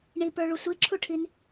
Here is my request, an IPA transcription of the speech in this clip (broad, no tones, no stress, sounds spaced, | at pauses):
ɳ i p ə˞ ɭ u sʷ i ǁʰ u ʈʰ i n